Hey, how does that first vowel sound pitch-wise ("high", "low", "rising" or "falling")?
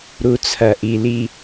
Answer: low